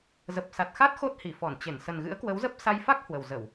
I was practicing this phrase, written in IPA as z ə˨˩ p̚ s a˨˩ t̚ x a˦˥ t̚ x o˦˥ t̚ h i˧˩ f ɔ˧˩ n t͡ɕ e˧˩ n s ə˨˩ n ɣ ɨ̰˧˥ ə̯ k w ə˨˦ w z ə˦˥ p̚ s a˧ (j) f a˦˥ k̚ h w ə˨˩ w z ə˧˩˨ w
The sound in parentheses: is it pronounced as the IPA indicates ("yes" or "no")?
yes